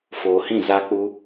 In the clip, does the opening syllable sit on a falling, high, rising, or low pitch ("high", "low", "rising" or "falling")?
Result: low